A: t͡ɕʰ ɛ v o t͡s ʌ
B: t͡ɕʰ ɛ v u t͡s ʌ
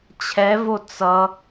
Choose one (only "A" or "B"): A